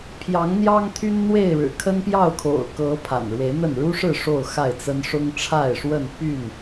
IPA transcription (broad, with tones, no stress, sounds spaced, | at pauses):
pʰ j ɑ˨˦ ŋ n̪ j ɑ˦ ŋ t̪ʰ y˦ n n̪ w e˥˨ ɪ̯ ɻ ɻ̩˨˩ kʰ ə˦ n p j ɑ˥˨ ʊ̯ kʰ o̰˨˩ ʊ̯ k ɤ˨˦ pʰ a̰˨˩ n ɻ w e˨˦ ɪ̯ n̪ ə˥˨ n ɻ u˦ ʂ ɻ̩˥˨ ʂ o˥˨ ʊ̯ x a˥˨ ɪ̯ t͡s ə˦ n ʂ ʊ˦ ŋ ʈ͡ʂʰ a˥˨ ɪ̯ ʂ w ə˥˨ n p y˥˨ n